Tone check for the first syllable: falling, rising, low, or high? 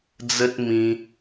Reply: high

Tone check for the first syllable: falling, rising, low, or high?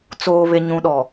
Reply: low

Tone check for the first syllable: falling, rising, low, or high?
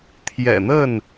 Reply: low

